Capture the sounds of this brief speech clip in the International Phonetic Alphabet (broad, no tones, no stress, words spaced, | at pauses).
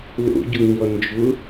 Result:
lo̰ɟoɲɔ nd͡ʒʊ